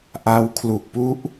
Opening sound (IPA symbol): ʔ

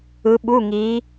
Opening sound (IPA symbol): ɯ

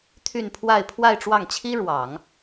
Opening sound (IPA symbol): t̪ʰ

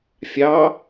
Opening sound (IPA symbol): fʲ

